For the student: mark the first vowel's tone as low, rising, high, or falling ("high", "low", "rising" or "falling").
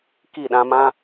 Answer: falling